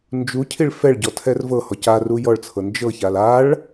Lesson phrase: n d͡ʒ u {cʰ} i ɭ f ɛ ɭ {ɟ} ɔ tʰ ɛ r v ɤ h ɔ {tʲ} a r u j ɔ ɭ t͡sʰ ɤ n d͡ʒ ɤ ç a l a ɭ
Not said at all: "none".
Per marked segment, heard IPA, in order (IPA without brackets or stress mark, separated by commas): cʰ, ɟ, c